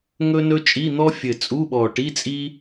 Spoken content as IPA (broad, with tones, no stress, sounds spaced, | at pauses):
ŋ ɵ˥ n ɵ˥ t͡ʃʼ i˧˥˧ n̪ ɔ˥ fʲ ɘ˨˩ t͡sʼ u˧˥˧ ɓ ɔ˨˩ ʈ i˧˥˧ t͡sʼ i˥